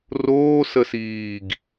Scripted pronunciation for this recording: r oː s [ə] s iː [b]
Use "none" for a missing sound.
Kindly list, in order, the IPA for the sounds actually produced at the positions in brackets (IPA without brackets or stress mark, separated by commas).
ə, ɡ